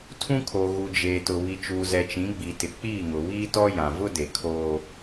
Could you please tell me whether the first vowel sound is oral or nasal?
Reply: nasal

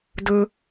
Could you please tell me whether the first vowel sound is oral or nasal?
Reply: oral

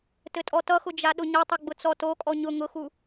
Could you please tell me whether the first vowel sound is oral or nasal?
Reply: oral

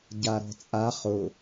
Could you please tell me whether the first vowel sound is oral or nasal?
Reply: oral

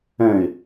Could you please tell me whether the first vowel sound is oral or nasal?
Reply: nasal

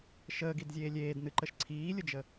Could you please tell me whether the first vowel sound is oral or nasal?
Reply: oral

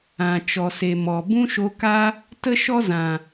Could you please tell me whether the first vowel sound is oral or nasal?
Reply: nasal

